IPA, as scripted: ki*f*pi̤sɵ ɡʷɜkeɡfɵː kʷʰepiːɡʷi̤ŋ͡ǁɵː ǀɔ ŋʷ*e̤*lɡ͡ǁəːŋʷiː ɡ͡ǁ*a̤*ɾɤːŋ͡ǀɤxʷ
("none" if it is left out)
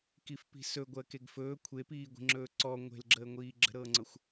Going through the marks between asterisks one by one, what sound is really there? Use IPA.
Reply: f, e̤, ə̤

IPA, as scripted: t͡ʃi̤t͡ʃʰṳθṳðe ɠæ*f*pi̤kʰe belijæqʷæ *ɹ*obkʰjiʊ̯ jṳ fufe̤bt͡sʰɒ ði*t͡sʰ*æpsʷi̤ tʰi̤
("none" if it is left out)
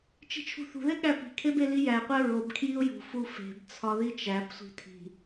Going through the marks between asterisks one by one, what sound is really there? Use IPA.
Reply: none, ɹ, t͡ʃ

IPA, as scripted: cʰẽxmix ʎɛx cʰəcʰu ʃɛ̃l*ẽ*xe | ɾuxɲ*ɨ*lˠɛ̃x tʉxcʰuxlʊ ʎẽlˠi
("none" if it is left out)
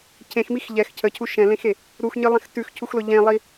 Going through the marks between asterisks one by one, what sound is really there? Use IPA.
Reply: ẽ, ɨ

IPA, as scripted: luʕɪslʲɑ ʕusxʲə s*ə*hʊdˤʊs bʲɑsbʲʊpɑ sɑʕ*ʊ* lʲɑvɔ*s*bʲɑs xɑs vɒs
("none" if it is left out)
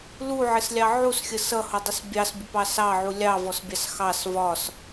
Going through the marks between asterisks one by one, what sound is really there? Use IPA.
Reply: ʌ, u, s

